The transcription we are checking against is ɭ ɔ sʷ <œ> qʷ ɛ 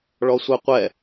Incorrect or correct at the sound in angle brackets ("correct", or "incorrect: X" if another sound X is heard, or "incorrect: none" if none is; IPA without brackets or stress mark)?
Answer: correct